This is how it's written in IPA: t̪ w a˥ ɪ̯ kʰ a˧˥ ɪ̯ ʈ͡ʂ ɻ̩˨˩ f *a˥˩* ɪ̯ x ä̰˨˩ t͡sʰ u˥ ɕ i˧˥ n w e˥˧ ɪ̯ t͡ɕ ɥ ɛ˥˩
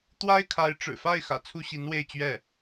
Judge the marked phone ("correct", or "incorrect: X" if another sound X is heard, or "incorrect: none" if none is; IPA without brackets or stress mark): correct